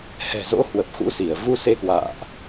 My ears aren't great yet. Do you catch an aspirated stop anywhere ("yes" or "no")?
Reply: no